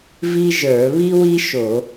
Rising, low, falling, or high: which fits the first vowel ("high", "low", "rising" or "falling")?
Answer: high